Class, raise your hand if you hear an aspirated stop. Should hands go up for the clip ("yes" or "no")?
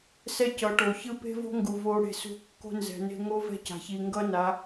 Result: no